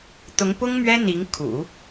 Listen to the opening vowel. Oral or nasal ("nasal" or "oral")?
oral